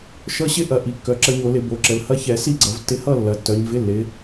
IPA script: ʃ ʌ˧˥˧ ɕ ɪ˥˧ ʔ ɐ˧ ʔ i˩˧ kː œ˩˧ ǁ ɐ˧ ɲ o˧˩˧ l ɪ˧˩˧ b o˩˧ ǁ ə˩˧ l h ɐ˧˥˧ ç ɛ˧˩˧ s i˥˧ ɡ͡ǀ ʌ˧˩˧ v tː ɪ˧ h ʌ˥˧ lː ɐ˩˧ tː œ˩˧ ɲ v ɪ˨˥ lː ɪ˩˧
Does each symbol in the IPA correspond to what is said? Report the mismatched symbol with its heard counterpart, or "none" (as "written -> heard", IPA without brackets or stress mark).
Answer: none